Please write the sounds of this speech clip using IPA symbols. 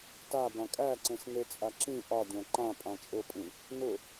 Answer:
tabã kʼæǀẽs net͡sʼaǁĩ ʔɒ dʲæ̃ǃã pʼãt͡ʃʼʊpʼĩ | nʊ

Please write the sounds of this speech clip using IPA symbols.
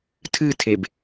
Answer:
tʰɨtʰeb

